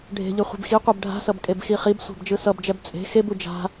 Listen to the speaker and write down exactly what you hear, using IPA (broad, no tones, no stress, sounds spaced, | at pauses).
ɖʱ e̤ ʎ ɯ χʷ i̤ b x i qʷ ɛ b ɖʱ a̤ s ʌ b kʼ e b x i χ i b sʷ a̤ b d͡ʒ ɯ s ʌ b d͡ʒ ɛ b t͡sʼ e̤ x e b u d͡ʒ a̤